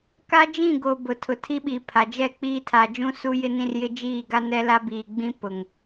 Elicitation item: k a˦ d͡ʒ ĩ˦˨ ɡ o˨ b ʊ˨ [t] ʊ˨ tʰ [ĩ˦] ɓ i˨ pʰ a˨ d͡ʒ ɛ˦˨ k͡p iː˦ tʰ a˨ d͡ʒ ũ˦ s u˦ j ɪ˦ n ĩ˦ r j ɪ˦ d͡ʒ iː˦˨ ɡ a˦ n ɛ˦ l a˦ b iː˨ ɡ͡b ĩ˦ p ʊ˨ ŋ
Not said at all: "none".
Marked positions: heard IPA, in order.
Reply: tʰ, i˦

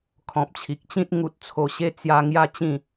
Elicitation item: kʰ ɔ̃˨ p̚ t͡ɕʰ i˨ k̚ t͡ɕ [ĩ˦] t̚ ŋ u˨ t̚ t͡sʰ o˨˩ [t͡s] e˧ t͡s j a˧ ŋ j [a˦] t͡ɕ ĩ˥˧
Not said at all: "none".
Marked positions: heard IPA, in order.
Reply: ĩ˦, ɕ, a˦

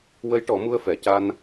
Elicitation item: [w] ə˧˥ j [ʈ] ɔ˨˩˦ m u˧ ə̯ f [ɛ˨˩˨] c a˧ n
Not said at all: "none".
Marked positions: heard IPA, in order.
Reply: w, ʈ, ɛ˨˩˨

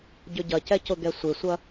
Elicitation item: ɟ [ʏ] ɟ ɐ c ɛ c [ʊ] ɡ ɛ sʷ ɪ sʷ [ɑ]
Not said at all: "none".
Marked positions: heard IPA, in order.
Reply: ʏ, ʊ, ɐ

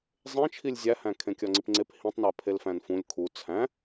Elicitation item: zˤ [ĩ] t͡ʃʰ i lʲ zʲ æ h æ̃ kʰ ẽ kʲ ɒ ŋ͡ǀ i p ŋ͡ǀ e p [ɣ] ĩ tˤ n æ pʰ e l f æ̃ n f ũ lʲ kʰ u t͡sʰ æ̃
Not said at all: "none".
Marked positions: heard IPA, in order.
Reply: ẽ, h

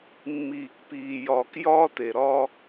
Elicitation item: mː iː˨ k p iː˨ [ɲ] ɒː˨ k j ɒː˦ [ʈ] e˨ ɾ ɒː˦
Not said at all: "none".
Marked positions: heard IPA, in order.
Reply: j, t

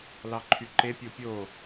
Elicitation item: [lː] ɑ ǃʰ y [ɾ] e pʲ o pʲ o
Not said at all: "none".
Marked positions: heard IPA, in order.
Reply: l, ǃ

